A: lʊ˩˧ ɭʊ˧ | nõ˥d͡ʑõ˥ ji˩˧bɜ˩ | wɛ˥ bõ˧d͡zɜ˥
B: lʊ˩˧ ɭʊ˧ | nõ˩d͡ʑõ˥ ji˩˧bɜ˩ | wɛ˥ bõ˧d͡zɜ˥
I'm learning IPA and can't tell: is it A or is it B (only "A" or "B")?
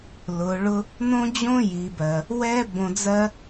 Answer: A